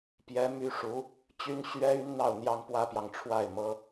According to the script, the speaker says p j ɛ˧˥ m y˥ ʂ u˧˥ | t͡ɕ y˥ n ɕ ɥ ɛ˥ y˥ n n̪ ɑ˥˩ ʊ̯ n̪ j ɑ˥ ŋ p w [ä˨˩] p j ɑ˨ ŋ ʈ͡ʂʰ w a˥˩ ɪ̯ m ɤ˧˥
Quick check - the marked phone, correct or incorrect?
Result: incorrect